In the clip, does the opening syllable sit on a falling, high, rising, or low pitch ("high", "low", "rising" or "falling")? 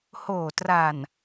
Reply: low